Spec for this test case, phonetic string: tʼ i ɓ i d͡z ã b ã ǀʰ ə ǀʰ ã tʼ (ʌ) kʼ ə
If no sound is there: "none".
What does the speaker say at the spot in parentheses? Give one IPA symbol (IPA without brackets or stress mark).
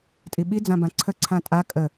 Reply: a